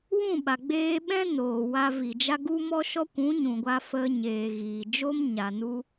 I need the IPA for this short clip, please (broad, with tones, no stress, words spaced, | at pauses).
wũ˦˨ɓa˨ɡ͡beː˧ɓɛ̃˦ noː˨wa˧vi˨d͡ʒa˦ ɡu˦mɔ˦ʃɔ˦ kʷũ˨˦ɲũ˨ɡʷa˧ fə˧ ɲeː˨ɣiː˨d͡ʒo˦m ɲa˨ nu˦